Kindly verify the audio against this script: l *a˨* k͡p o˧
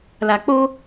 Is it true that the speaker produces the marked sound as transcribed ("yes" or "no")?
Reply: yes